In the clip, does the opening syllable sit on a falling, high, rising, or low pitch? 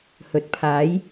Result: low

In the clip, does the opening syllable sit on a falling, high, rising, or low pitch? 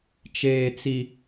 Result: low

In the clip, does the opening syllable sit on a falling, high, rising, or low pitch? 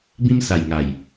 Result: high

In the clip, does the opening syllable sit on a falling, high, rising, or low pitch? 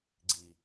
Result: low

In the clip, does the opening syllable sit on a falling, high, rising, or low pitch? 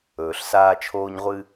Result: low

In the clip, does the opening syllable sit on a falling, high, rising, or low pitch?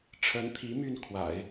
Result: rising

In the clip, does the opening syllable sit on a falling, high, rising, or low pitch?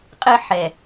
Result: high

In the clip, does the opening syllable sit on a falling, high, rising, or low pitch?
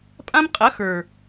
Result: high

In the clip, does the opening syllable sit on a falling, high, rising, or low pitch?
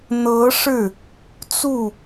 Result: rising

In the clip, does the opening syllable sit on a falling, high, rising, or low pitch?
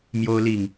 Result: high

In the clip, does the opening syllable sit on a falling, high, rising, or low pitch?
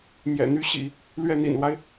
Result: low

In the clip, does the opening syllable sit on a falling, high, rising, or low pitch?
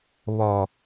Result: low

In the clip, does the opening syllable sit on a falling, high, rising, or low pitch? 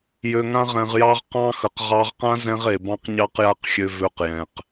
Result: low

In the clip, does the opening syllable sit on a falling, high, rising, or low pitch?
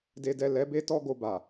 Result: low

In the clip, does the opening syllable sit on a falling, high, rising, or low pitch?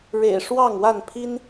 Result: low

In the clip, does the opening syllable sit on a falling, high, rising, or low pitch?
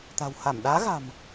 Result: low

